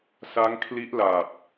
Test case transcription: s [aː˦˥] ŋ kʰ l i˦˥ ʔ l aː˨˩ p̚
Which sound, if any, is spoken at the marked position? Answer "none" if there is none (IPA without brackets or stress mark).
a˦˥